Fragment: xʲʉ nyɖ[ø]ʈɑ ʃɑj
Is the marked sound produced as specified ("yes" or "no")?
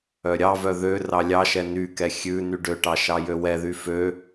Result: yes